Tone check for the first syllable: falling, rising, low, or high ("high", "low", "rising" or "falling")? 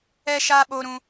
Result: high